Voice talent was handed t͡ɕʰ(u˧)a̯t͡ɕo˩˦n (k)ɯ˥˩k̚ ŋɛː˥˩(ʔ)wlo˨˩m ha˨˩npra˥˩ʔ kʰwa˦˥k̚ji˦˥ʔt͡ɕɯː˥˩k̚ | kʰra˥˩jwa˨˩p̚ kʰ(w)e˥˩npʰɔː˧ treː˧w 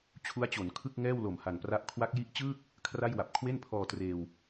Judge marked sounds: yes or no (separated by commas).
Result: no, no, no, yes